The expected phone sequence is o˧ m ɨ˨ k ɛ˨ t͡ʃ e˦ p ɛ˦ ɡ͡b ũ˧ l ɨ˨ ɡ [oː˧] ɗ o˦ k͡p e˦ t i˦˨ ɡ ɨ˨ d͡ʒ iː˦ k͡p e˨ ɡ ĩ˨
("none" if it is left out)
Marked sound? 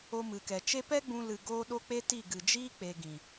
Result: oː˦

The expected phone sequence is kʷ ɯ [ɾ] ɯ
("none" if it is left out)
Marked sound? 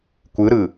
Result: ɾ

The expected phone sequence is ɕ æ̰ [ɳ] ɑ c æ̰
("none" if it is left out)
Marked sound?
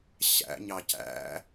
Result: ɲ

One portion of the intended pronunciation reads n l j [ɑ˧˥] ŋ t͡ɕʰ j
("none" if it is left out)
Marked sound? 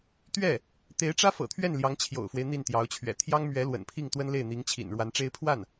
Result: ɑ˧˥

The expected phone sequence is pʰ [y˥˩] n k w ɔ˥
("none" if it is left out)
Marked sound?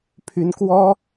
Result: y˧˥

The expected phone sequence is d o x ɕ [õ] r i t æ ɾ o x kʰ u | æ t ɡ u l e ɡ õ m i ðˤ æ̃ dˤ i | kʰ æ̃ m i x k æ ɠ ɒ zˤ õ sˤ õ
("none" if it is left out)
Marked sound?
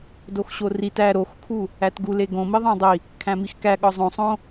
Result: o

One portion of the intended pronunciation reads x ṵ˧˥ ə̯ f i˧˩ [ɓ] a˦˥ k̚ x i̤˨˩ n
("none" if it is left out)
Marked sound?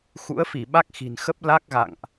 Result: ɓ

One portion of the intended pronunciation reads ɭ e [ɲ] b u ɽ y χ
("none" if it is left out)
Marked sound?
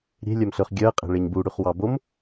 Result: ɲ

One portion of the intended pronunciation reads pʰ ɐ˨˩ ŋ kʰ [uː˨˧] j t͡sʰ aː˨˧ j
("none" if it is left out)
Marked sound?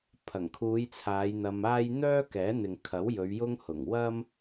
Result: uː˨˧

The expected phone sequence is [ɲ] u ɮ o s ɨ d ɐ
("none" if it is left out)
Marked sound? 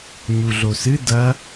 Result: ɲ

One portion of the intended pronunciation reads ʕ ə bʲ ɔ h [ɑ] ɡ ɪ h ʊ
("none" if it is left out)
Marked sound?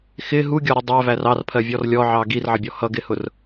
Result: ʌ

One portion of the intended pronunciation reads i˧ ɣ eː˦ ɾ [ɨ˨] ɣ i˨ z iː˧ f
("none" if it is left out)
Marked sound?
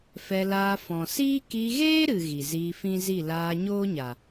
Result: ɨ˨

